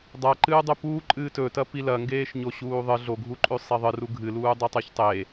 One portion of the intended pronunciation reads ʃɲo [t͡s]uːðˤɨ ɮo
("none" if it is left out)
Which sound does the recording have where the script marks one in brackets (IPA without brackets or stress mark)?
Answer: ɕ